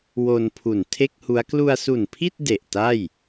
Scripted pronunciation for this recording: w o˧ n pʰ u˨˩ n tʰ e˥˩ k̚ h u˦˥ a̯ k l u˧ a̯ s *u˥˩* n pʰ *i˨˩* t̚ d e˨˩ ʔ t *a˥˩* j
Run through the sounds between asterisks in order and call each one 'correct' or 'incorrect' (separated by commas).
incorrect, incorrect, correct